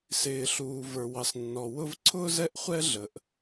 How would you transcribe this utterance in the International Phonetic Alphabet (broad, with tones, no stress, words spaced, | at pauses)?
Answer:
sɪː˩ɬuː˩ və˞˩wɑ˩snːɔ˩ wʊ˥v ǀʰʊː˥zɛ˥ʔ χʷɛ˥ɮə˩ʔ